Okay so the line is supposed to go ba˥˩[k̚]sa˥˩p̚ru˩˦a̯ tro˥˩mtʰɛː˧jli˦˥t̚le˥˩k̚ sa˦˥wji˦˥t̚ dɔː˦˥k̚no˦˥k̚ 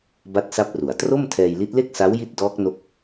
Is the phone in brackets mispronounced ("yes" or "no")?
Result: yes